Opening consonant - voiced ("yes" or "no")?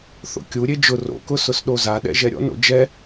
no